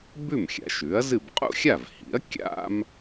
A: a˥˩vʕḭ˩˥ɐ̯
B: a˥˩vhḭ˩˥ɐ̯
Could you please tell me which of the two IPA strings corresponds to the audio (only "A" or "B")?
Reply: B